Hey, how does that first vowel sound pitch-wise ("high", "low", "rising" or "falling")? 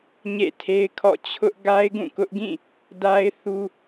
falling